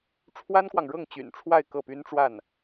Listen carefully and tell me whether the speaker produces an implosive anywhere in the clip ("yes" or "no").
no